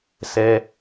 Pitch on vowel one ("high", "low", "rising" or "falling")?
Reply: high